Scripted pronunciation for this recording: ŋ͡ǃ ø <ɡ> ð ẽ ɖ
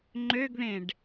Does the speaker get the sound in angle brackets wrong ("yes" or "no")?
no